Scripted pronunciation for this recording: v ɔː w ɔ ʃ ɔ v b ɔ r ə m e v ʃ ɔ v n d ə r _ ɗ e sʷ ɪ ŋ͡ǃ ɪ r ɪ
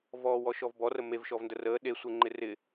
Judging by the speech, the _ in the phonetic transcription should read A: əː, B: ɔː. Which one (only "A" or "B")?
A